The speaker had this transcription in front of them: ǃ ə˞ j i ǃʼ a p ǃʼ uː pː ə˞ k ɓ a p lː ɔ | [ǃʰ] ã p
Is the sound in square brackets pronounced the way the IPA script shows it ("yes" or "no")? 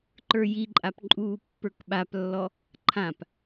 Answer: yes